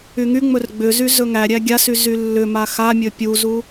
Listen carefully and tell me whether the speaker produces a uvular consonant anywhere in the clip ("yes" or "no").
no